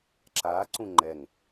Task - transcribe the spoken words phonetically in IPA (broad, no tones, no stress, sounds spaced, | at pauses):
ǁ aː ǀ ũ ŋ͡ǃ ɛ ŋ